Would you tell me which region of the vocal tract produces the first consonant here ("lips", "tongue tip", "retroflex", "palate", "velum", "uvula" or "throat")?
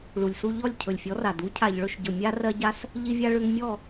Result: retroflex